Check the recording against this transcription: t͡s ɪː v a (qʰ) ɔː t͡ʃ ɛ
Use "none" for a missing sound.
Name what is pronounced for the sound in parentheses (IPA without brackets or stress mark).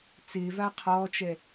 qʰ